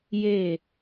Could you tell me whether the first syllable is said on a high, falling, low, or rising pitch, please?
falling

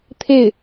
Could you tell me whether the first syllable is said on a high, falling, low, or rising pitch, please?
falling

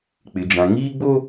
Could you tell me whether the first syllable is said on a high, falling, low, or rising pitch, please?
low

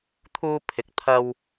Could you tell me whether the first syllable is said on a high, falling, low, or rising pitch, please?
high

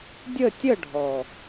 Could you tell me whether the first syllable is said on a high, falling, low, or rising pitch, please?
falling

